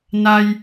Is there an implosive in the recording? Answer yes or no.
no